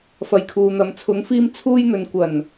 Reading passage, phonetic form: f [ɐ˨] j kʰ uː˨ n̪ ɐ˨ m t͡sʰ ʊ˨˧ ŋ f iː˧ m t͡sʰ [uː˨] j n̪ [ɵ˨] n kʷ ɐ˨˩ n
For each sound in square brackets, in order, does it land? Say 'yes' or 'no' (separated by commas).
yes, no, yes